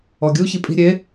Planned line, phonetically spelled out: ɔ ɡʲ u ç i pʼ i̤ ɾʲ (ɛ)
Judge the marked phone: incorrect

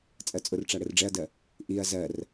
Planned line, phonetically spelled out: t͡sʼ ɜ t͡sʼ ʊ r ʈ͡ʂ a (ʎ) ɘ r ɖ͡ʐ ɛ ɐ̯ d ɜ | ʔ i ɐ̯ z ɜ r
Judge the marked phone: incorrect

